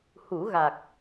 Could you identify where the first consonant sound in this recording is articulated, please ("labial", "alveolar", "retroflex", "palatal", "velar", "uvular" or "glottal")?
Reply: glottal